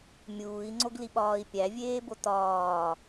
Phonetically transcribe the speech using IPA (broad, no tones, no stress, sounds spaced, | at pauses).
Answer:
mʲ uː i̯ ŋ͡ǀ o ɡ l i ɓ ɒː i̯ pʲ æ vʲ eː b o t ɒː